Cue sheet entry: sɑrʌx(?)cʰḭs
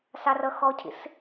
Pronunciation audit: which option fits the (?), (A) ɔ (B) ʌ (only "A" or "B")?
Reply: A